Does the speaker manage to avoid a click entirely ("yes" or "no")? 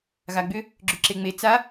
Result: no